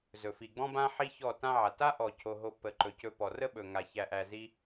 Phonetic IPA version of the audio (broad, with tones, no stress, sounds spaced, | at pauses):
z ɵ˨ f i˨ ɡ͡b ɔ̃˦ b ã˦ ħ i˦ ç ɔ˦˨ t ã˦ ʕ a˨ t a˦ ʔ ɔ˨ cʰ o˧ ɦ o˦ pː ə˧ ǃ ɵ˨ c ɵ˧ p ɔ˨ r ə˦ ɓ ɵ˨ ŋ a˧ ç æ˧ ʔ æ˧ z i˦